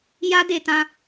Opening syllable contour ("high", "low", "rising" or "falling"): high